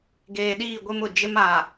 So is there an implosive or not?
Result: yes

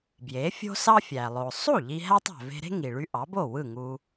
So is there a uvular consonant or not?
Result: no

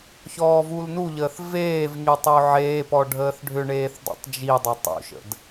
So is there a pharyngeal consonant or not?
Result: yes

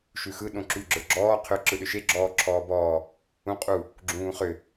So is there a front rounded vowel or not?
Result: yes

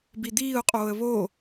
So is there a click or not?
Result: no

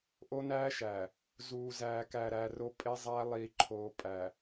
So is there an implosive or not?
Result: no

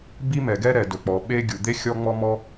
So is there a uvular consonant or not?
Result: no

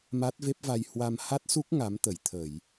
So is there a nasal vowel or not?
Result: no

